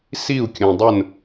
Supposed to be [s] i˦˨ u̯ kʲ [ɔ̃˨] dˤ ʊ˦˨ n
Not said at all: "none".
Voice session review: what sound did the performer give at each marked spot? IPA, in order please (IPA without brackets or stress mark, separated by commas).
s, õ˨